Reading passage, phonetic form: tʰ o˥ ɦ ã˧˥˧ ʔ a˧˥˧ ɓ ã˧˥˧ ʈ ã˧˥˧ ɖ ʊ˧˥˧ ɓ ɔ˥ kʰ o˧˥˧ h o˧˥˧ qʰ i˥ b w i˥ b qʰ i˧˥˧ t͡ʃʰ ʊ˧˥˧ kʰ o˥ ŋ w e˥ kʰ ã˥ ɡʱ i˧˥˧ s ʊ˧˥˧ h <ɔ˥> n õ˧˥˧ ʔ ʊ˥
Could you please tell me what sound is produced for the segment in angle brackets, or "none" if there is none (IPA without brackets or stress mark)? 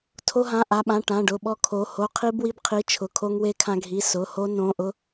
o˥